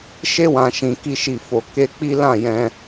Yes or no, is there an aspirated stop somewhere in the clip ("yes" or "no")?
no